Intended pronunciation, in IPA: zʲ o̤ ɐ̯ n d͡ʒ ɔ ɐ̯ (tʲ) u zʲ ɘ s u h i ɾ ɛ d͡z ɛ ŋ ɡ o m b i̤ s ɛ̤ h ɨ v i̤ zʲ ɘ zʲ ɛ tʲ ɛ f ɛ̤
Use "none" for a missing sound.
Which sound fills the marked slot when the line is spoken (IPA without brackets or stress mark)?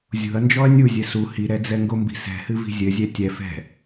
nʲ